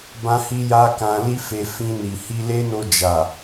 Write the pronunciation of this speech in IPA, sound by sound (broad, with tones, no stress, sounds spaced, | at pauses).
b ã˦ h i˦ j a˦ k ã˧ l i˦ f e˧ f ĩ˧ n i˨ h i˧ l e˦ n o˧ d͡ʒ a˨